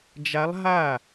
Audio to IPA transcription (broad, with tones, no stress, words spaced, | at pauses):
d͡ʒa˧˥lˠɦa˥˩